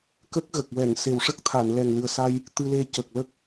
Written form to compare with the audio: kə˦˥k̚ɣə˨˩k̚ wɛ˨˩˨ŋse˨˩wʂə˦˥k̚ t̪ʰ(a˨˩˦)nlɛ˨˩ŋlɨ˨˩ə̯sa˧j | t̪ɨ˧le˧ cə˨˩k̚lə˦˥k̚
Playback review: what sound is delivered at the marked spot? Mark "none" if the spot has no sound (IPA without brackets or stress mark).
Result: a˨˩˨